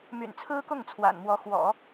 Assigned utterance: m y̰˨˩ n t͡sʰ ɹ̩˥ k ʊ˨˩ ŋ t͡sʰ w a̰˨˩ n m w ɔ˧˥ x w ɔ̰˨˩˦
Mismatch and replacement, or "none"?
ʊ˨˩ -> ʊ˥˩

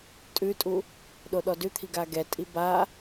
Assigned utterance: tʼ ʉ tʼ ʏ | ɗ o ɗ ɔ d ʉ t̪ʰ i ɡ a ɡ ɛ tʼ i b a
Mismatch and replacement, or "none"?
ʏ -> u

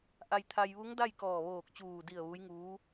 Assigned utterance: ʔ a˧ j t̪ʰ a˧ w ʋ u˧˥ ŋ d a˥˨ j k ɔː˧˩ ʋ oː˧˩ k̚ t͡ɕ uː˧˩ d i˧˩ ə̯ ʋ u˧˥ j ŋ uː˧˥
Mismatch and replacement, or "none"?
w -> j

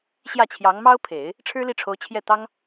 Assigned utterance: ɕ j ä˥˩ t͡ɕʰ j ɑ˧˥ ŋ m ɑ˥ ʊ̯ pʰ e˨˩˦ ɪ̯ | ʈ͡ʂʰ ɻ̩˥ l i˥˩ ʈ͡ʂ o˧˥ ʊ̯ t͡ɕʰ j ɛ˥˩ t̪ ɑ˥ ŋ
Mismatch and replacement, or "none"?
ʈ͡ʂ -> ʈ͡ʂʰ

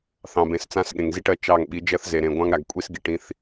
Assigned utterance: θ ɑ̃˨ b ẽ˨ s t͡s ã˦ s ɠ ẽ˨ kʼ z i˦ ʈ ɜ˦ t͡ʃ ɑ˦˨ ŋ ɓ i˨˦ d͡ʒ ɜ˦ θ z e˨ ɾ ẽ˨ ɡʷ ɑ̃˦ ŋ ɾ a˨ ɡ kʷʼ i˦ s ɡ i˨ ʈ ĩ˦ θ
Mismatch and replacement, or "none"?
kʼ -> ŋ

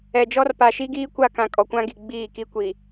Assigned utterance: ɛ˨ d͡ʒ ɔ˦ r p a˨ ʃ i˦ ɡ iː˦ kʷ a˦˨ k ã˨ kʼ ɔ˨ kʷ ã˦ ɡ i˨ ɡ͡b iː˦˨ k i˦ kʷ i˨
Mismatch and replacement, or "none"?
none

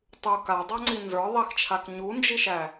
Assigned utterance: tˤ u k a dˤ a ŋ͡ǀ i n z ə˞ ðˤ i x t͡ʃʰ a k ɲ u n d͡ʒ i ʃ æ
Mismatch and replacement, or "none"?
none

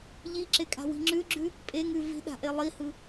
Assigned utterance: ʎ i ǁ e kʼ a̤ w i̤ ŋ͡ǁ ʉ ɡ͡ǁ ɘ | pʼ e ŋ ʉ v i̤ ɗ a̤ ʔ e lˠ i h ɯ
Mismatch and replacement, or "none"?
ɘ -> ʉ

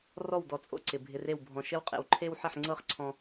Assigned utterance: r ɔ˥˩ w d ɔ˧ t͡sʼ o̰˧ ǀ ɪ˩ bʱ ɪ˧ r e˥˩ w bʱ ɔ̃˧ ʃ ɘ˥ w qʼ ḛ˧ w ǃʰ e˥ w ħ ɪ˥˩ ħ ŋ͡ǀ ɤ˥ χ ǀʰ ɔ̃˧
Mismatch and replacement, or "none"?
none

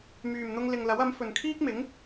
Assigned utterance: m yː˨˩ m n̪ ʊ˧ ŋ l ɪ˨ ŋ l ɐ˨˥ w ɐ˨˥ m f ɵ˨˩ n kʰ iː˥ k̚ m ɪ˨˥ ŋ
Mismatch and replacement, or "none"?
none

